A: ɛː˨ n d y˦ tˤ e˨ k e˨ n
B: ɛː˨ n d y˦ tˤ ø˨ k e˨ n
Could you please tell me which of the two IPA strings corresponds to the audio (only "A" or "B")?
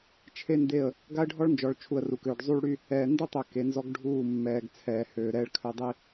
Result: B